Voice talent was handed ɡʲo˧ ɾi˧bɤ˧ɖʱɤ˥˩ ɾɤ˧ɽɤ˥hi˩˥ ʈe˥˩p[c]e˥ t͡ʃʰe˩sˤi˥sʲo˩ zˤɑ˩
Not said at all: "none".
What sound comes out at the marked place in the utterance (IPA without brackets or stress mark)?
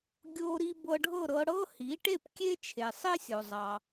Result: kʲ